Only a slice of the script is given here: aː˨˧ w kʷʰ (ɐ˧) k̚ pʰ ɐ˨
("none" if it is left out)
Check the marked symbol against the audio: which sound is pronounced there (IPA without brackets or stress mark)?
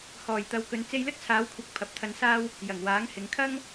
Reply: ɐ˨˥